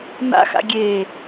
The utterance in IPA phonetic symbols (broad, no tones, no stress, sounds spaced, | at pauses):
n̪ a̰ x a̰ ɡʲ eː